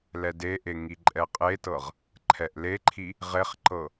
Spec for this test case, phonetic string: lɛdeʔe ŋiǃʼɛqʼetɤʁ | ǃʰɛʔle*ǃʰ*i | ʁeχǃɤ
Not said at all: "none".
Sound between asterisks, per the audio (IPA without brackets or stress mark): ǃʰ